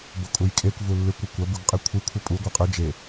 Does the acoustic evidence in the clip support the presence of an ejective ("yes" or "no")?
yes